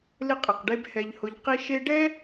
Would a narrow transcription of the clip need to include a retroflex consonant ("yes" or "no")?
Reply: yes